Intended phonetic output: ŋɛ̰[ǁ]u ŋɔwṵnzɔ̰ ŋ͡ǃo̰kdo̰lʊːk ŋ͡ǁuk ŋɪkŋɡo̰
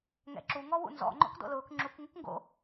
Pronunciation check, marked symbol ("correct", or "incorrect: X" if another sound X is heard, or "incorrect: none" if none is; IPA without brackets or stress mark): correct